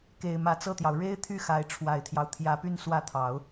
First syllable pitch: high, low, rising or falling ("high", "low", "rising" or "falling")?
low